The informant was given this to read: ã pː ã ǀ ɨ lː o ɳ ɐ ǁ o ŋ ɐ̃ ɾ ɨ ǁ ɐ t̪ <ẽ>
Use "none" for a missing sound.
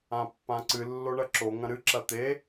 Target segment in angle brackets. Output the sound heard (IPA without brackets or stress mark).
e